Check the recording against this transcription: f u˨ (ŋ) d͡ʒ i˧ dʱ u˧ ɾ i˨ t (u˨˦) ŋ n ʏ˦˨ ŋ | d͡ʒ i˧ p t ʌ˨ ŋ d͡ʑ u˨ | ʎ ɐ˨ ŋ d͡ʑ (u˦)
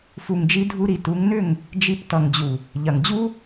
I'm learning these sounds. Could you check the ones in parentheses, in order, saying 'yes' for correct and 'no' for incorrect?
yes, yes, yes

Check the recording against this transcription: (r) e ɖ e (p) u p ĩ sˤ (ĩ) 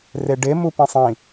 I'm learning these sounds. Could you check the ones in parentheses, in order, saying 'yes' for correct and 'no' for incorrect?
yes, no, yes

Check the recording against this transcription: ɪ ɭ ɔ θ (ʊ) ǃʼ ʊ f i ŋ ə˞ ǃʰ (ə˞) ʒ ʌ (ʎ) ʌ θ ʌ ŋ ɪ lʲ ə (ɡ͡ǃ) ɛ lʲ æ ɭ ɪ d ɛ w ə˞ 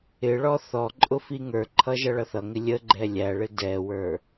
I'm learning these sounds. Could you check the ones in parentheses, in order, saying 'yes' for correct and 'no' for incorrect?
no, no, no, yes

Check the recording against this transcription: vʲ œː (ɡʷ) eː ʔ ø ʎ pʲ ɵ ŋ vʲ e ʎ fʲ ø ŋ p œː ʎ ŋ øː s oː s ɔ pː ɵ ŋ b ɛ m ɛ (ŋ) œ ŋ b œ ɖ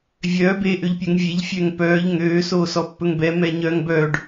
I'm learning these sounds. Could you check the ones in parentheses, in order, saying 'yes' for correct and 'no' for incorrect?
no, no

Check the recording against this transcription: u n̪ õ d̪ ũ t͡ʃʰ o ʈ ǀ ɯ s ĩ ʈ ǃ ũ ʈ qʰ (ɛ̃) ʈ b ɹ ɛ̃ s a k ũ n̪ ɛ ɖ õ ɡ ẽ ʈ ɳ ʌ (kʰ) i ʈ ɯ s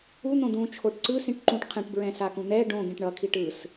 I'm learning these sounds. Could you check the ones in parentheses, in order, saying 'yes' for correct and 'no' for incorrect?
yes, yes

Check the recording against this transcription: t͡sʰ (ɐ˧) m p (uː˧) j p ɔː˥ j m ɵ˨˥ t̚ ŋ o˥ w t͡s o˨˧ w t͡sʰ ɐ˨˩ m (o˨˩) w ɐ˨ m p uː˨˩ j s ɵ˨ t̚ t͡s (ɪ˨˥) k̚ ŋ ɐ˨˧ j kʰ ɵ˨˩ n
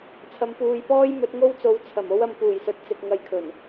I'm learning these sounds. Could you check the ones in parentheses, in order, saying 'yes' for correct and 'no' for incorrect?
yes, yes, no, no

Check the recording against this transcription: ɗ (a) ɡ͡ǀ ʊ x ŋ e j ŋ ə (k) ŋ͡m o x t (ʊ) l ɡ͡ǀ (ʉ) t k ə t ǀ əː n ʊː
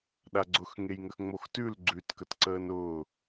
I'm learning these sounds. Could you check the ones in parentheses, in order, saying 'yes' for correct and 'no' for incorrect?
yes, no, no, yes

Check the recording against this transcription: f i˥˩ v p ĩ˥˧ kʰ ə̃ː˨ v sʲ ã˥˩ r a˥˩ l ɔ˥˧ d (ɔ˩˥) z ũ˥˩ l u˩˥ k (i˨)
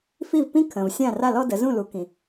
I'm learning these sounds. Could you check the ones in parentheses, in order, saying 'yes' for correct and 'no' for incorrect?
no, no

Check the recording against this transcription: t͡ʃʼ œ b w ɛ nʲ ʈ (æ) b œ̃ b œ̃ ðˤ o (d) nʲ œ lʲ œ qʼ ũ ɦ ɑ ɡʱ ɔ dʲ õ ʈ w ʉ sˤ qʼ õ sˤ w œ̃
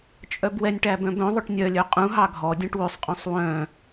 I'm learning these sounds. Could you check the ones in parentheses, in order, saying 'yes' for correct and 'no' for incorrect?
yes, no

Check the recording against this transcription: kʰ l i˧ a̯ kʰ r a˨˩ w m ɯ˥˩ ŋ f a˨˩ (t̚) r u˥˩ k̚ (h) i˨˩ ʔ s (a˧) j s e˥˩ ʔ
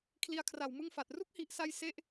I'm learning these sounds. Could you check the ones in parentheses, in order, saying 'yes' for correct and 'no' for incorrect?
yes, yes, yes

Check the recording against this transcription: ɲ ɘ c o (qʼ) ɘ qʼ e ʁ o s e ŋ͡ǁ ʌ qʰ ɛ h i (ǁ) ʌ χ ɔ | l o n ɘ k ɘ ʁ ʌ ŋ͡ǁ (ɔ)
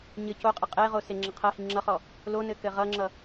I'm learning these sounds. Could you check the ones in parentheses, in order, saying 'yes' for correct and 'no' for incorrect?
yes, no, no

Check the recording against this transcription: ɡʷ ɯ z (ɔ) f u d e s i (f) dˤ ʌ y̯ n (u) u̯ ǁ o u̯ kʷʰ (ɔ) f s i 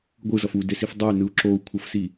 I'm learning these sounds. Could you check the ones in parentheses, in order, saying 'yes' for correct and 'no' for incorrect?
no, yes, no, no

